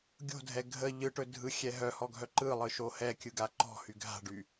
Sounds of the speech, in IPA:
ɡʲo̤dʱɛ ɡʱə ʎɯʈɵ dʱɯxʲɛ ɦœhɔɡʱœ ǃɯlˠɯʃo hɛkʲɯɡa ǃɔ̤hy ɡʱa̤ɖy

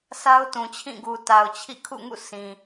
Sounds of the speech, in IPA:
sʰa˦ʊ̯tũ˨t͡ɕʰĩ˦˨ɡu˨ ta˨ʊ̯t͡ɕʰḭ˦˨ kʰṵ˦˨ŋṵ˦˨ sĩ˨

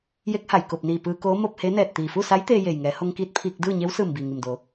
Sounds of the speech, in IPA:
je˧˥k̚ha˩jko˧˩p̚niː˧˩ pɯː˧koː˧˥ mo˧p̚he˧˥nɛː˧˩t̚ t̪iː˩fu˥˨sa˧˥j t̪eː˧je˩jŋɛː˩˧ ho˧ŋkiː˧t̚ pʰiː˧k̚ dɯː˥˨ɲe˧˥w sɯː˧˩mbiː˩ŋi˩mdo˩˧

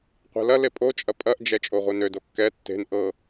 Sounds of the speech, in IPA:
qʷɛ̤lɐle pʼot͡ʃʼɐ pʼɐʔd͡ʒɛ t͡ʃʼoʁʷenødo kːɛ tːe̤n ʔɤ

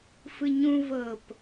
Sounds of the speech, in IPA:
fɯɲũ vɤp

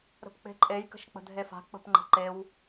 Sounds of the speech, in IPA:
ɾə̤pk͡pe̤ǃʼej kə̤ʃk͡pə̤dʱefa̤ k͡pə̤pŋ͡ǃə̤ǃew

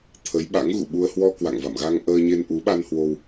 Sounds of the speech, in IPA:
t̪ʰə˨˦jɓa̰˧˥ŋɣṵ˧˨ɓu˧ə̯ hwɔ˧kwa̰˧˨ŋva̰˧˨mɣa˧ŋ ʔəː˧ɲe˧n ʔu˨˦ɓa˧nhwo˧w

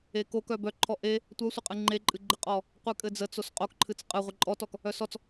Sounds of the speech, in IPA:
eko kœbœǃʰɔ ʔe | tʷœsʷəqʼɨ ŋ͡ǃeǃʼɨɡ͡ǃɘqʼɔ | qʷɨkʼɘd͡zə t͡sosqʼokǃʰɨt͡s qʼɨʁʷɘ ǃʼɔtɔk | œsɔt͡s

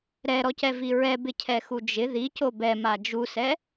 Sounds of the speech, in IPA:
ɾɛɾɔcɛvi ɹɛbɪcʰɛxu d͡ʒɪ ðico bɛma d͡ʒusɛ

